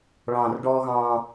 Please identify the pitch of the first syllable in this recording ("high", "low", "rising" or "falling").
low